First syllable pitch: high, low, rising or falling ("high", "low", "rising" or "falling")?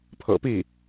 low